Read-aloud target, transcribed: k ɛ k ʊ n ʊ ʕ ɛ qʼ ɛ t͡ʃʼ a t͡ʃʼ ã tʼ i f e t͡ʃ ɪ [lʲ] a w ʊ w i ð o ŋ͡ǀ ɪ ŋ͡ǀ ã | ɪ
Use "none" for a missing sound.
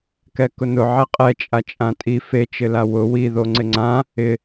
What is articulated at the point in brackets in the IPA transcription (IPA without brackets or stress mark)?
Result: l